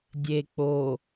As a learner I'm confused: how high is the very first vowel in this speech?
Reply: mid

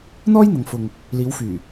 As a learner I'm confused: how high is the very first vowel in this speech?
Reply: mid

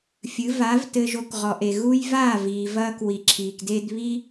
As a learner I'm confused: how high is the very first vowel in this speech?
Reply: high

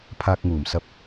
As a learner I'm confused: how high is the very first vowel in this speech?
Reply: low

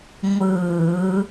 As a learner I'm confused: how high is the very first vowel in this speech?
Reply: high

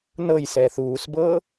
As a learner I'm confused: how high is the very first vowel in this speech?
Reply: mid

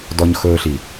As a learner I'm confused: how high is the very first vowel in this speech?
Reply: mid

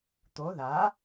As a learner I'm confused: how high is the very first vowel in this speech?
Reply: mid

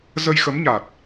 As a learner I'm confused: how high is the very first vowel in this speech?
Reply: mid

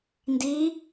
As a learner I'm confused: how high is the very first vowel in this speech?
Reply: high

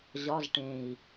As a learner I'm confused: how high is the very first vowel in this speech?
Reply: low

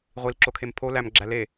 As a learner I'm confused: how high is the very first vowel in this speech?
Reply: high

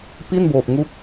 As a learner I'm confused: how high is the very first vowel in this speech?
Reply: high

